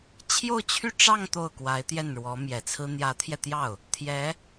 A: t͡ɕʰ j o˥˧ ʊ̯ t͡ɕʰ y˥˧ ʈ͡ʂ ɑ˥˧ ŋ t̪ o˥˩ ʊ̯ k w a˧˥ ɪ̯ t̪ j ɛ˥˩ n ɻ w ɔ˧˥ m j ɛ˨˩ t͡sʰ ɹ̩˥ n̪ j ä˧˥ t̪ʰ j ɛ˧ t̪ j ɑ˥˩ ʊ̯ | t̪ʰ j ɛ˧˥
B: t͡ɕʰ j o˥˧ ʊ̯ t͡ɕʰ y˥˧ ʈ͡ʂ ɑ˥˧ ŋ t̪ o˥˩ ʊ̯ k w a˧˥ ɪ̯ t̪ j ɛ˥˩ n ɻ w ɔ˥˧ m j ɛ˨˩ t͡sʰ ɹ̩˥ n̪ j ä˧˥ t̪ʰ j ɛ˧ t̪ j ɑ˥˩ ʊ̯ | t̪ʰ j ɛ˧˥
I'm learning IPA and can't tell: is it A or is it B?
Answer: A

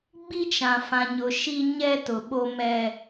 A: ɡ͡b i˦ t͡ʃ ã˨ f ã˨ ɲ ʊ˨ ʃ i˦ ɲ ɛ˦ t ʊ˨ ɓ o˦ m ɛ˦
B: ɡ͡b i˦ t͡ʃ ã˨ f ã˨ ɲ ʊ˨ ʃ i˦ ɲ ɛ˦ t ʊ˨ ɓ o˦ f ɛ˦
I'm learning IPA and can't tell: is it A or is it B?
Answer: A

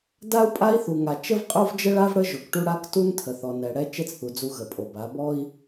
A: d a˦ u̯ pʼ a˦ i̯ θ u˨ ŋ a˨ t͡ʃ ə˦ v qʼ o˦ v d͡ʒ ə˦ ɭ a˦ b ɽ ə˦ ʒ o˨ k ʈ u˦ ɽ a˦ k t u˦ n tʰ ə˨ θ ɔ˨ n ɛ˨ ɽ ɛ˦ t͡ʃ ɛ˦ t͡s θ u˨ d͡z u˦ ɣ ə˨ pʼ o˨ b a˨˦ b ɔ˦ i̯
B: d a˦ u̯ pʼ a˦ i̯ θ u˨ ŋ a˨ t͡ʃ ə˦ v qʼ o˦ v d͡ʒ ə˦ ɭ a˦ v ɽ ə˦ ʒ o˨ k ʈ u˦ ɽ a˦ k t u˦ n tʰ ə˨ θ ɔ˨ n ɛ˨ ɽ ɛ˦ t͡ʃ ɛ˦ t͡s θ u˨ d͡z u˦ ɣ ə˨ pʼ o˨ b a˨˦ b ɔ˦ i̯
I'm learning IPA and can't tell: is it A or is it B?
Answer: B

